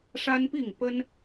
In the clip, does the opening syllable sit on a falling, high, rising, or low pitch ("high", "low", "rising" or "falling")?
high